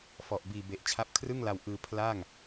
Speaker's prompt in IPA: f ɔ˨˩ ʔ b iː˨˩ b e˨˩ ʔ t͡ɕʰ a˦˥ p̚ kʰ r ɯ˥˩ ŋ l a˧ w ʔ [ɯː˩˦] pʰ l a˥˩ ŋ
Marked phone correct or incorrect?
incorrect